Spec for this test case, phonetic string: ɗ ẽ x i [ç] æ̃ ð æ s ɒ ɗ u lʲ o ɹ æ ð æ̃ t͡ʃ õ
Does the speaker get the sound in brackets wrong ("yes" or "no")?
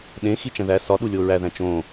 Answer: yes